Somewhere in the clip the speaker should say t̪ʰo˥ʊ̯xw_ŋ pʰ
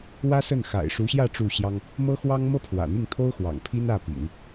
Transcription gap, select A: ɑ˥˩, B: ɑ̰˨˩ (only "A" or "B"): B